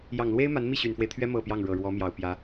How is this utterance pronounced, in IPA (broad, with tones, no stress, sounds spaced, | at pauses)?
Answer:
j ɑ˨˩ ŋ l w e˥ ɪ̯ m a˧˥ n m i˥˩ ɕ y˨˩ n f w e˦ ɪ̯ t̪ʰ ɥ ɛ˥ m ɤ˨˩ p j ɑ˥˩ ŋ ɻ ɤ˨˩ ɻ w ɔ˧˥ m j ɑ˨˩ ʊ̯ p j ä˧˥